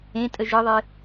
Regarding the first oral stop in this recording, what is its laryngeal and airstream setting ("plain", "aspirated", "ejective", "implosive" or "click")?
ejective